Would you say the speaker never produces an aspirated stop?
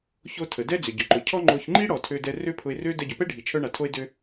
no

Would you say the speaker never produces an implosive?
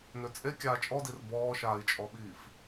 no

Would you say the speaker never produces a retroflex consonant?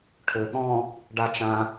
no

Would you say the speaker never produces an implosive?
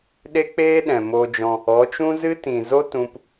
no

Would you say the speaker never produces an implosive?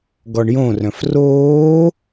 yes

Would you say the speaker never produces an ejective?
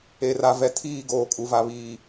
no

